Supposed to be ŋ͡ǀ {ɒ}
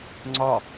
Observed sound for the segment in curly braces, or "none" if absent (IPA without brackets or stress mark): ɒ